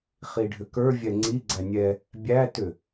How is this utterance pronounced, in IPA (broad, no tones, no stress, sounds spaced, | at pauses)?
χ i ɖʱ ʏ k ə˞ vʲ ɛ ŋ͡ǀ i ɡ͡ǀ æ nʲ ɛ | bʲ æ t ʏ